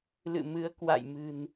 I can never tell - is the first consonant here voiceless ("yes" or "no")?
no